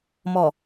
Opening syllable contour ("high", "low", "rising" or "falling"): low